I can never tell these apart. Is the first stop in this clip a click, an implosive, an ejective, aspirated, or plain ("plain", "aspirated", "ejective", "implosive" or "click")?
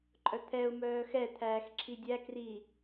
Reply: click